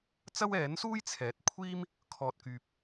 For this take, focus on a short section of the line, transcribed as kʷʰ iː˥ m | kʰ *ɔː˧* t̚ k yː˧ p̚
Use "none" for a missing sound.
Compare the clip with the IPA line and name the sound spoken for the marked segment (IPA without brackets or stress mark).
ɔː˧